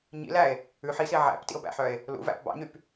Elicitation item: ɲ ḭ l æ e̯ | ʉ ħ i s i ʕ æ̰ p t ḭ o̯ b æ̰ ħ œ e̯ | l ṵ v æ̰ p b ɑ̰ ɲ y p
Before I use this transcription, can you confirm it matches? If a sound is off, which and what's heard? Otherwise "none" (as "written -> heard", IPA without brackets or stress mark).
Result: none